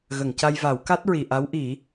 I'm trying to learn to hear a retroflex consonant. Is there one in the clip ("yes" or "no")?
no